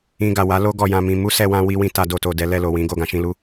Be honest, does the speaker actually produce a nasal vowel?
yes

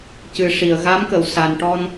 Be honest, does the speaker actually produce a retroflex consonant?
yes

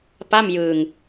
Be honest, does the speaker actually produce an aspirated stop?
no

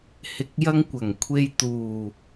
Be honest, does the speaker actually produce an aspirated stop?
yes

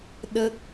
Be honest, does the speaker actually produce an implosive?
yes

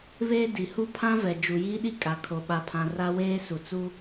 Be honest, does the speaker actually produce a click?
no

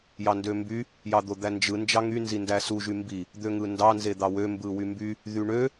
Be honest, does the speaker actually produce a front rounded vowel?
yes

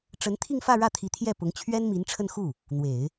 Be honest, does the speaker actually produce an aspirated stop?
yes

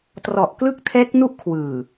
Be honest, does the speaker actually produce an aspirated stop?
yes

